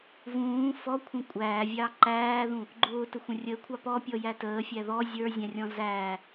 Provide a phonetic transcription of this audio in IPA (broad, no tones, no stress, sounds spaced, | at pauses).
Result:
v ũː f ɔ kʷʰ ə̃ kʷʼ æː vʲ ɑ ǃ æː ð ũ | ɡ͡ǃ ʊː t ə xʷ ə̃ rʲ əː kʷʰ ɑ p ɔ pʲ ɔ j æ t əː fʲ æ ð ɔ zʲ ə˞ zʲ æ̃ rʲ ɔ̃ z æː